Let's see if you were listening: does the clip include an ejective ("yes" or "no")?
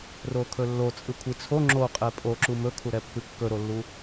yes